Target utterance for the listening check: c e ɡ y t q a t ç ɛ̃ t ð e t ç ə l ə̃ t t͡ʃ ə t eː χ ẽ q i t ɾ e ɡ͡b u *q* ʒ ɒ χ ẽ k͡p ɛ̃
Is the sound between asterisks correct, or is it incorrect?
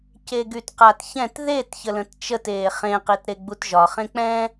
incorrect